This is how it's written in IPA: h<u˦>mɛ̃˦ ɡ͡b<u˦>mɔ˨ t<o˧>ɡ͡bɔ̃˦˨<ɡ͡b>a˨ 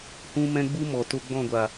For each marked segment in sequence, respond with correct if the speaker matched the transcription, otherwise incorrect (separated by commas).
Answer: incorrect, correct, correct, incorrect